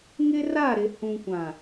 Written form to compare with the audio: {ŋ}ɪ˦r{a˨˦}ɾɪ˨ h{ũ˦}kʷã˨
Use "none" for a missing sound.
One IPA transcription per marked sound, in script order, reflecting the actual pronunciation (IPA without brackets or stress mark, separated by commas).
ŋ, a˦˨, ũ˨